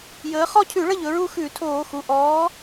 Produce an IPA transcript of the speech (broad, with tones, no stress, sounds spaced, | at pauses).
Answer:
j əː˨˥ χ ɔ˦˨ cʰ ʉ˧˩˧ ɭ ə˦˨ ʎ ɵ˩˧ ɹ u˦˨ x ʉ˧˩˧ tʰ oː˧˩˧ x u˩˧˩ ʔ ɔː˨˥